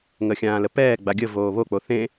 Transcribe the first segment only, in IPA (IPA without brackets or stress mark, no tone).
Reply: ŋ